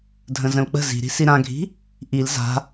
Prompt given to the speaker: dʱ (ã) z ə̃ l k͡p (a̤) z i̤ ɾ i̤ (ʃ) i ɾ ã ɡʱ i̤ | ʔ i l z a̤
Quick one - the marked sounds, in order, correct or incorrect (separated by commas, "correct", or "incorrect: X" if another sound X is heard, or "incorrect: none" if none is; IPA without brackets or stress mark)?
incorrect: ə̃, incorrect: ə̤, incorrect: s